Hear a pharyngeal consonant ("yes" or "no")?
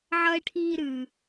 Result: yes